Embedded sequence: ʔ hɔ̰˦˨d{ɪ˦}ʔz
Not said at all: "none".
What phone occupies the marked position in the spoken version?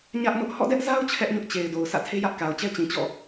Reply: ɛ˦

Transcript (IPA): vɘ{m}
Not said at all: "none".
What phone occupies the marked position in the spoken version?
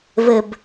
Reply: b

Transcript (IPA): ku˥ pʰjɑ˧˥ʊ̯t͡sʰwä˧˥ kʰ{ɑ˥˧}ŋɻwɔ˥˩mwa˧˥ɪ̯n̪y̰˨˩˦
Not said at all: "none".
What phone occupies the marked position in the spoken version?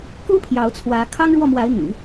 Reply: ɑ˥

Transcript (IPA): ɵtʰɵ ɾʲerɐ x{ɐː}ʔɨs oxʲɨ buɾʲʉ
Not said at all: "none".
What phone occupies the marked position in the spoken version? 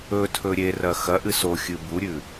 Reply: ɐ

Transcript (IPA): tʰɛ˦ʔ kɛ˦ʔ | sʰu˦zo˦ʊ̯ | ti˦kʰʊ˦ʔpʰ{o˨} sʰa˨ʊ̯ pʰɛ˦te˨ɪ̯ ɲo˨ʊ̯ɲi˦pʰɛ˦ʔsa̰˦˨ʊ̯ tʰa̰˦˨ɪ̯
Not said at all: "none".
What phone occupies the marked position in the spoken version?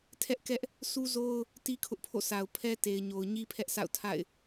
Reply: o̰˦˨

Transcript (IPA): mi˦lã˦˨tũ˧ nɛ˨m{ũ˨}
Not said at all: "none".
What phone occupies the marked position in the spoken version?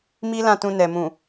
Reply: ũ˨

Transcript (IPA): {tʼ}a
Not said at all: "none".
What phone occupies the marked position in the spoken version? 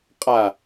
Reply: qʼ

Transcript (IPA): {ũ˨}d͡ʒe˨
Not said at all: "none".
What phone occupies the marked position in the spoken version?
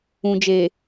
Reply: ũ˨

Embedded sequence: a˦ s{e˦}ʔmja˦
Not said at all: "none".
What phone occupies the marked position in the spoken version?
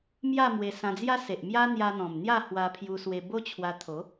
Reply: e˨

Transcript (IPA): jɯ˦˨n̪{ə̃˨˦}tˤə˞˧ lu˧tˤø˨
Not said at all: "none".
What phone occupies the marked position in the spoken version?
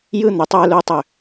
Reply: ə˨˦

